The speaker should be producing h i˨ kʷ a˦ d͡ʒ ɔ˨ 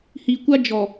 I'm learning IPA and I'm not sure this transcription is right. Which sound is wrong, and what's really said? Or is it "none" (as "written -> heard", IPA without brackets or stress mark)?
none